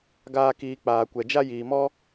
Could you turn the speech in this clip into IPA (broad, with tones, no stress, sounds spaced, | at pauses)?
ɡ aː˦ k iː˧ k͡p aː˨ kʷ ɛ˨ d͡ʒ a˦ j iː˨ m ɔ˦